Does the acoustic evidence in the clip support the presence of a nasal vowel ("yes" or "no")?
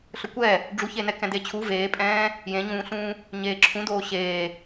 yes